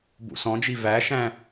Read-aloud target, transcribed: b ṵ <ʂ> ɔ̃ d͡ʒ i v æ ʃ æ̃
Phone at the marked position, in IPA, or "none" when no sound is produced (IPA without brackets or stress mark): s